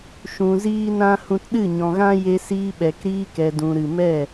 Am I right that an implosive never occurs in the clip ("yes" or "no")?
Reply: no